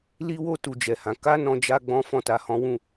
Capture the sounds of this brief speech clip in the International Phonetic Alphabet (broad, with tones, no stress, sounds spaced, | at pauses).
l i˦ w o˦ t u˧ d͡ʒ ɛ˨ h ã˨˦ k a˦ n ɔ̃˧ d͡ʒ a˦ ɡ͡b ɔ̃˦ f ɔ̃˦˨ t a˧ h ɔ̃˦ w ũ˦˨